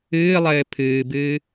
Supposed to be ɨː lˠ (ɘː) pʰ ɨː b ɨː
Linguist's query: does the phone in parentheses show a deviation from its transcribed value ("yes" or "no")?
no